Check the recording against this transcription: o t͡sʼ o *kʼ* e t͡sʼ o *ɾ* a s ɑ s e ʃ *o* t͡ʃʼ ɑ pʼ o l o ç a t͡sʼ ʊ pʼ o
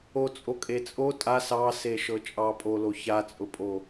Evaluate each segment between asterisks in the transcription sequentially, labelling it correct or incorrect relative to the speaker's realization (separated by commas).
correct, incorrect, incorrect